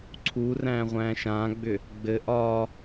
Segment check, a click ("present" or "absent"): present